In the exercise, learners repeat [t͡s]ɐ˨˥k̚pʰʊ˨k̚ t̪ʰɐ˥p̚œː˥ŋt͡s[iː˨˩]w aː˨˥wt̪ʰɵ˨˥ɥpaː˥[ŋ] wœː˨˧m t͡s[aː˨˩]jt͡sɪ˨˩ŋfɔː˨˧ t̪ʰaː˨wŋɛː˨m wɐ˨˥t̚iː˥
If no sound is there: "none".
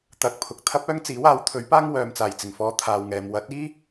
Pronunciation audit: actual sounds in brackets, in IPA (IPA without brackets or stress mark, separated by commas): t̪, iː˨˥, ŋ, aː˨˩